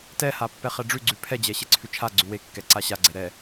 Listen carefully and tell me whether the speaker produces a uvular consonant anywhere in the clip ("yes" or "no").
yes